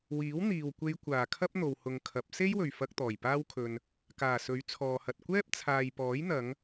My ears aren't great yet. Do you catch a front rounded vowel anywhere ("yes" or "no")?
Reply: no